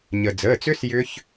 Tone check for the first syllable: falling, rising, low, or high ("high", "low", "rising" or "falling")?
low